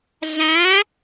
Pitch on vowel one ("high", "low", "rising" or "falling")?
rising